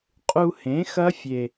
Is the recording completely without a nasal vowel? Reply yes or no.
no